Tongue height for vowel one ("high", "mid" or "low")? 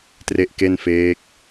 mid